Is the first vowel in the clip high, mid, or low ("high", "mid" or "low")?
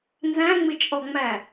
low